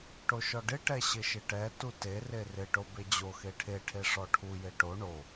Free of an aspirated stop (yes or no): no